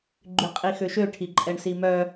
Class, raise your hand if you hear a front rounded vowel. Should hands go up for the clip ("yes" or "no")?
yes